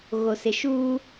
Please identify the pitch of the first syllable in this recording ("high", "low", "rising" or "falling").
low